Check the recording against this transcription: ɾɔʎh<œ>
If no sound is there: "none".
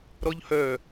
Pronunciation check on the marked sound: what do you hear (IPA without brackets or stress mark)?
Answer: œ